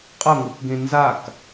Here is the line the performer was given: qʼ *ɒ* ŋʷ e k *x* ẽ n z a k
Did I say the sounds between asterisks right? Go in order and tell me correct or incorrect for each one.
incorrect: ʌ, incorrect: ɡ

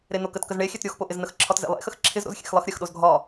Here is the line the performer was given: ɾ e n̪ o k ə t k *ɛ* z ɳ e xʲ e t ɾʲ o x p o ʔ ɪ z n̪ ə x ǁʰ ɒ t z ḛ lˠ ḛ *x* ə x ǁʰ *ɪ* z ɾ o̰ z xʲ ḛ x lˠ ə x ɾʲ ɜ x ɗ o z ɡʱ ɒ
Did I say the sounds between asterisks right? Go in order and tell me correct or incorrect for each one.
incorrect: ə, correct, correct

